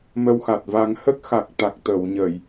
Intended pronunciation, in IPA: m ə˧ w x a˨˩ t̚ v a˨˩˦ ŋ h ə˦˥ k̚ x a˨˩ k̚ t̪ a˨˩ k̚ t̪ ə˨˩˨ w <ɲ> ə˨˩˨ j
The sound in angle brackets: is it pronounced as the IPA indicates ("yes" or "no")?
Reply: yes